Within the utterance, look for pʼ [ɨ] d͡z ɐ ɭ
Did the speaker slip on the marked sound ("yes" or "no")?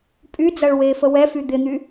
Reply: yes